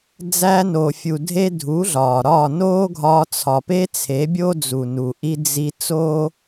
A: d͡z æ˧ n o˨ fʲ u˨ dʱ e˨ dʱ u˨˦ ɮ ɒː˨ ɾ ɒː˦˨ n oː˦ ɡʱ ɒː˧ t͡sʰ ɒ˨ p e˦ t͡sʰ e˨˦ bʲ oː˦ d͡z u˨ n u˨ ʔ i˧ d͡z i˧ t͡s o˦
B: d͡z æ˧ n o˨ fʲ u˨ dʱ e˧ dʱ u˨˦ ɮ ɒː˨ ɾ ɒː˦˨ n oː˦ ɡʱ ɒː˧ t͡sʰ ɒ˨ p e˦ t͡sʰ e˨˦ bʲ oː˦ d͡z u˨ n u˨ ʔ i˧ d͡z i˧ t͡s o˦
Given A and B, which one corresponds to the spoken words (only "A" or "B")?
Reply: B